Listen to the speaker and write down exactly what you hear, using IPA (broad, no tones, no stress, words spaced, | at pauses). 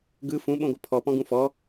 ɡɯ fũɓõɡʷɯ pʰɔpɔ̃ɡũ fɔ